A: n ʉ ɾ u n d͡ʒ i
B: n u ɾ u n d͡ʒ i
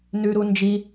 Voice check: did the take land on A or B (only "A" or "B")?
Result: A